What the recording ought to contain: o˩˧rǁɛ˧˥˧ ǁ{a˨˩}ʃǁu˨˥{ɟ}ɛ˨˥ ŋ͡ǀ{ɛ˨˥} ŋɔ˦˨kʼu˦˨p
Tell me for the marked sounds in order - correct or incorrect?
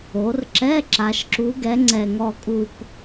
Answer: incorrect: a˩˧, incorrect: ɡ, incorrect: ɛ˨˩

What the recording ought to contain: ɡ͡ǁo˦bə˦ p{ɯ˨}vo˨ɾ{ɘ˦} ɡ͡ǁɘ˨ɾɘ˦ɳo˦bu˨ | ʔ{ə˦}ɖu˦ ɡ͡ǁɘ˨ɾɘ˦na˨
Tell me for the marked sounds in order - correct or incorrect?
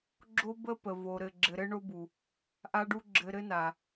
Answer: incorrect: ə˨, incorrect: ɘ˨, incorrect: a˦

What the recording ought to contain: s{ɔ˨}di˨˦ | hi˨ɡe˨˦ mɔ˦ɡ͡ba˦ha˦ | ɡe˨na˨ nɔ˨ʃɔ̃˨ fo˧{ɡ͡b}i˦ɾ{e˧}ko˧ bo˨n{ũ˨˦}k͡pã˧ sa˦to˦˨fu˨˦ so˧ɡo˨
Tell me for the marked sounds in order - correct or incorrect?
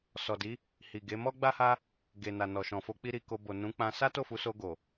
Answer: correct, incorrect: k͡p, incorrect: i˧, correct

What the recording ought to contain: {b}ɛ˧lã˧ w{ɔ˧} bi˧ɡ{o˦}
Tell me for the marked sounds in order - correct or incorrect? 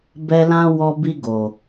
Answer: correct, correct, incorrect: o˨

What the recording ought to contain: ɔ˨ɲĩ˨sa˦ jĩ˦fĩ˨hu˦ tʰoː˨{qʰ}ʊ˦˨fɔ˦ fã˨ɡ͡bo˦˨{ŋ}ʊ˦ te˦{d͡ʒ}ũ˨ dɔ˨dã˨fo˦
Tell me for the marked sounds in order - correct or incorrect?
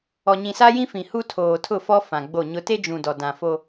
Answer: incorrect: tʰ, incorrect: ɲ, correct

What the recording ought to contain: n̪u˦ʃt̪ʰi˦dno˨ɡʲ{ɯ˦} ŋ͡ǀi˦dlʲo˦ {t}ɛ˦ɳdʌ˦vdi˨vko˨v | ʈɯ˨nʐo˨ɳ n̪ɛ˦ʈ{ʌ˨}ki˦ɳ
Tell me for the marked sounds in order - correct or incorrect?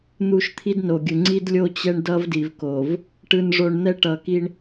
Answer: incorrect: ɯ˨, incorrect: t͡ɕ, correct

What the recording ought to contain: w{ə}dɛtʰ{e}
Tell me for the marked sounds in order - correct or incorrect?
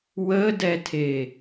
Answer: correct, correct

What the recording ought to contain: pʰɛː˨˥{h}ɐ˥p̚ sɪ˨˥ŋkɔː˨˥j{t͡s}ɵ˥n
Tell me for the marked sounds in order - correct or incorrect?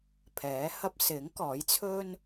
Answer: correct, incorrect: t͡sʰ

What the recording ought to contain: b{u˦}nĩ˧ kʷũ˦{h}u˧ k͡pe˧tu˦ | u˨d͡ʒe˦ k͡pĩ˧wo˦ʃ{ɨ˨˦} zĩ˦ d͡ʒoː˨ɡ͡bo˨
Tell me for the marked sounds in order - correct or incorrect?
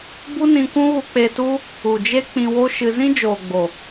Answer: correct, incorrect: ɣ, incorrect: ɨ˧

